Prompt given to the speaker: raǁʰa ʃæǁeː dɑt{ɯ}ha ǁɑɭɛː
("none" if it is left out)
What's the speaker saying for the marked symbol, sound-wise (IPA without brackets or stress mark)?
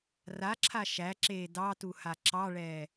u